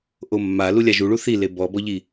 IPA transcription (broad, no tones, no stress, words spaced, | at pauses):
ʔomːa lulʲaʒuɭu θi lebɔbɔʎi